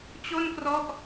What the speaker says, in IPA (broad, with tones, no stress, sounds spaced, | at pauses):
t͡ɕ o˥˩ n k r ɔ˦˥ ʔ